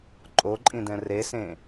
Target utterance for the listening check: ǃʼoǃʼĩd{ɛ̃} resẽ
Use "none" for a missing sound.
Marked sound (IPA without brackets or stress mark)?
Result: ɛ̃